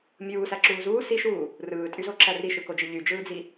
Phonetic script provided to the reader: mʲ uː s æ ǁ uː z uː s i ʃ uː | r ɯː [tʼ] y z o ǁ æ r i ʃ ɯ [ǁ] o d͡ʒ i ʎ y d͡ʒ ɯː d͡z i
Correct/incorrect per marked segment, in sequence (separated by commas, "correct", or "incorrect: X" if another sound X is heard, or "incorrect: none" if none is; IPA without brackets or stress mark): correct, incorrect: k